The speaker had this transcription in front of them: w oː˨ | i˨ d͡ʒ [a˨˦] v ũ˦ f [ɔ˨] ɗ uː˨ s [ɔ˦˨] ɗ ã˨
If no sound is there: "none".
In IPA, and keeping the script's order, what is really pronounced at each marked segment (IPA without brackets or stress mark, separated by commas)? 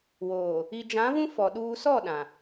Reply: ã˨˦, ɔ˨, ɔ˦˨